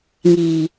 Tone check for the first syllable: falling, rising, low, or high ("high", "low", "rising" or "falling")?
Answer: low